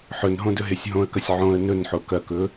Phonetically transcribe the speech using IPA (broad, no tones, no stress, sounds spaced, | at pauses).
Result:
ħ ɵ n ɦ õ d ɵ ɦ e sʲ ɦ õ ə̯ k ɐ sʲ ʕ õ ə̯ n ɵ n ħ o k ɐ k ɵ